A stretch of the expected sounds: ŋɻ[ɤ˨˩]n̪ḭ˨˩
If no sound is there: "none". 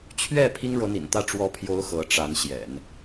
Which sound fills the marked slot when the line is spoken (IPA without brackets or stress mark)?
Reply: ɤ˧˥